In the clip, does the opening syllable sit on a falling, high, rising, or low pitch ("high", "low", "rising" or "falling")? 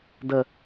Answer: high